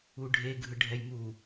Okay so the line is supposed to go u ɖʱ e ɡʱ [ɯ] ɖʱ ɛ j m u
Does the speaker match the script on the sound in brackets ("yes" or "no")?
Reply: yes